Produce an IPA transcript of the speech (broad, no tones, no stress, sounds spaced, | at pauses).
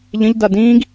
ʎ ə̃ ʎ d a d ĩː ɡ